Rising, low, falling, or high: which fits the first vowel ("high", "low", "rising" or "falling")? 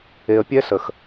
low